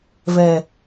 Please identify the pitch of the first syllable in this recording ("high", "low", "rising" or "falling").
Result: low